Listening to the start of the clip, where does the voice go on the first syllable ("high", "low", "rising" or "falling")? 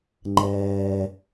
low